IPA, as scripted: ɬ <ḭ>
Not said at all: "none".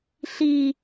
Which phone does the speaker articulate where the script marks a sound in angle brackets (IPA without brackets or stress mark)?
i